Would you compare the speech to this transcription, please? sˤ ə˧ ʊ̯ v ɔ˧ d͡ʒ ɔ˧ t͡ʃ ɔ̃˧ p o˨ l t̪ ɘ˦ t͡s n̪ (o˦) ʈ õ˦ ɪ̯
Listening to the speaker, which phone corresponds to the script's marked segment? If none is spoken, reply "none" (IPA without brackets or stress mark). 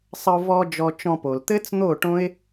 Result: o˦˨